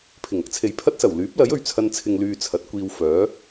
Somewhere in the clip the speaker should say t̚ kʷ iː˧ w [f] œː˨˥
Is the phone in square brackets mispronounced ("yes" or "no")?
no